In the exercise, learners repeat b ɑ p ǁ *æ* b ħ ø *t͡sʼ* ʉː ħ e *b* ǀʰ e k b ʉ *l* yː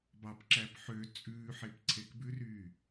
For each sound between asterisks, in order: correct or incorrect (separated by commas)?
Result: correct, correct, incorrect, incorrect